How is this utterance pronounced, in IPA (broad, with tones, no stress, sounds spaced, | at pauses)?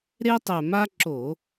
ɾ e˦ tˤ ɛ˨˩ m a˦ ǁ o˧˩˧